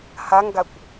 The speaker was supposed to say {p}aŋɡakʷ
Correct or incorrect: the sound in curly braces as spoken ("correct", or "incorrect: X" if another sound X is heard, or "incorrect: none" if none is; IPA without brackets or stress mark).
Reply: incorrect: h